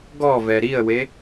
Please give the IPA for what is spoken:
ɡ ɔ v ɛ ɾ i ə̯ w e

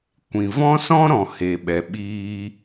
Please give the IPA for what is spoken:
kʷ ĩ˨ v ɔ̃˦ s ɔ̃˦ ɾ ɔ̃˨ h e˧ ɓ ɛ˧ ɓ iː˦

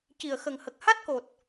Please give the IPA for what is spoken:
c i˨˩ ə̯ x ə˨˩ ŋ h ə˨˩ k̚ h a˦˥ t̚ k o˨˩ t̚

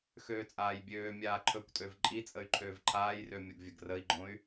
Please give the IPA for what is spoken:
x øː t͡sʼ aː j bʲ øː mʲ aː ǃʰ ɵ kʷ tʼ ø v ǃʼ i t͡sʼ ə y̯ ǃʰ øː v ǃʰ aː j r ø mʲ o ɡ vʲ ə ɡ r ə i̯ ɡ͡ǃ õ y̯

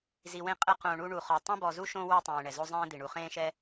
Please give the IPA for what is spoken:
z i˨ w ẽ˦ qʼ ɛ˦ q õ˨ ɳ u˦ ɳ u˨ χ ɔ˨ tˤ ẽ˥ b ɔ˨ z u˥ ʃ õ˦ w ɛ˥ tˤ ẽː˨ ɳ ɛ˩ z o˥ zˤ ẽː˥ d̪ i˩ ɳ u˨ χ ẽː˥ ʃ ɛ˥

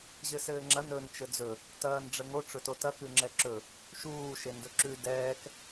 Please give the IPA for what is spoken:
ʑ ɘ s ɘː ŋ͡ǁ ɐ n ɵ n t͡ʃ ɘ d͡z ɵ | t ɐː n ɖ͡ʐ ə ŋ o ʈ͡ʂ ɵ t o t ɐ k ʉ ŋ͡ǁ ɛ ǁ ɵ | ʃ uː ʃ e n d ɵ ǁ ʉ d ɛː k

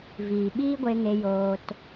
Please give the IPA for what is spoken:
v iː˨ ɓ iː˦ ɡʷ e˧ ŋ e˧ j oː˧ t

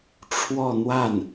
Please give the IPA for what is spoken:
ʈ͡ʂʰ w ɔ˥˧ n̪ w a˥˩ n

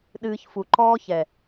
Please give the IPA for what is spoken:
ɗ ɨː˧ ç f u˨ ǃ ɔː˦ ç ɛ˨

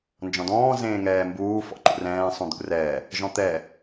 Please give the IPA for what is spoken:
n d͡ʒ ɔ̃ d ɔ̃ː z ẽː ŋ ɛː m b uː f ɔ̰ ǃ ṵ r ɛ̃ː sˤ ũ d̪ ṵ r ɛː | ʒ ɔ̃ t̪ ɛ

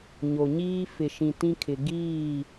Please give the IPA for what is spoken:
ɲ o˨ ɲ iː˦ f ɪ˨ ʃ ĩ˨ t ĩ˦ kʰ ɪ˨ ɡ iː˦˨

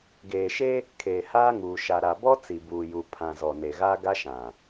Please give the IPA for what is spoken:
ɡ eː˨ ʃ e˦ | kʰ eː˨ h aː˦ ŋ uː˨ ʃ a˨ ɾ a˨ b ɔ˦ t͡s i˨ b uː˨ j u˨ pʰ ã˨ z ɔ˨ n e˨ ɣ aː˦ ɡ a˦ ʃ ã˨

